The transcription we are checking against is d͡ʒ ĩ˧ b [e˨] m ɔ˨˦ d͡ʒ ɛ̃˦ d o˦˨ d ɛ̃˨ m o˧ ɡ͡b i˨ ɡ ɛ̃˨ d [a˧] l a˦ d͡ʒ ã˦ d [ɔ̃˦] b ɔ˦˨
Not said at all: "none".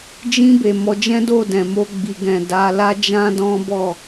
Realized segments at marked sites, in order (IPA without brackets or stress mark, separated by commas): e˨, a˨˦, ɔ̃˦